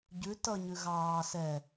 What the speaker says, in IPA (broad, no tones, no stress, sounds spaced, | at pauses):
ɟ ʉ t ʌ ɲ ʉ ɣ ɑː s ɛ